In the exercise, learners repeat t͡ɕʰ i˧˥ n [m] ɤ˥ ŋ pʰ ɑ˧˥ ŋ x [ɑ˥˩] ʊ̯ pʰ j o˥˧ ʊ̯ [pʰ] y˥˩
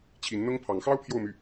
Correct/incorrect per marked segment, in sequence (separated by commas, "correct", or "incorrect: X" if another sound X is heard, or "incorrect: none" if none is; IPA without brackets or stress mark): incorrect: n̪, incorrect: ɑ˥, incorrect: m